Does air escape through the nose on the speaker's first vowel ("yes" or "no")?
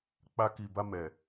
no